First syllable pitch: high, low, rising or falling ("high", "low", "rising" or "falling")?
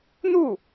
falling